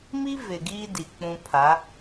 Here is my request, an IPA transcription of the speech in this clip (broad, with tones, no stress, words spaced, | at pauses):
mi˦ vɪ˨ɡiː˦ di˨k͡pũ˦ pʰa˨˦